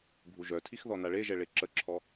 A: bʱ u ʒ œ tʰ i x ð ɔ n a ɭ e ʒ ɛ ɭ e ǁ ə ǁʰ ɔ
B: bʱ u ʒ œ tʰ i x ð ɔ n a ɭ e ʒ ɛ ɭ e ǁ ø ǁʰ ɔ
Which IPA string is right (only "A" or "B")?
A